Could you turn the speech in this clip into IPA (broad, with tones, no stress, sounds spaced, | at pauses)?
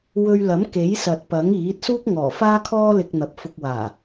w ɵ˧ ɥ l ɐ˨˥ m k e˨˥ j s ɐ˨ t̚ p ɐ˨˥ ŋ iː˨˥ t̚ s uː˥ k̚ ŋ ɔː˨˩ f aː˥ kʰ ɔː˥ l ɪ˧ k̚ n̪ ɐ˨ p̚ f ʊ˧ k̚ w aː˨˩